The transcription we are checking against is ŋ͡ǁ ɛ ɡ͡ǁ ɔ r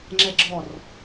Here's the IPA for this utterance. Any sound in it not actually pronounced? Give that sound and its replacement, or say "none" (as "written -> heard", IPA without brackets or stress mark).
none